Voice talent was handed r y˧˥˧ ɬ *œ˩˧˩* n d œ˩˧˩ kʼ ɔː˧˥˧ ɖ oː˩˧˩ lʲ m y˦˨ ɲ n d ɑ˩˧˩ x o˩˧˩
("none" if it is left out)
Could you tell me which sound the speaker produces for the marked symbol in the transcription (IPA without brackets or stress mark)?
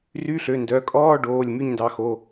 ø˩˧˩